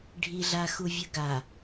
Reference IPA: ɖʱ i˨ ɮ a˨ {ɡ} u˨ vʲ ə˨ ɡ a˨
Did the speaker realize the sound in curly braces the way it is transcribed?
no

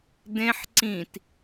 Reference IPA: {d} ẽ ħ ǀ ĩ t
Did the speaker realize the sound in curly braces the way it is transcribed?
yes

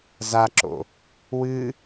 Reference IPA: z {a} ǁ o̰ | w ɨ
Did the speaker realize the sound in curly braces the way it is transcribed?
yes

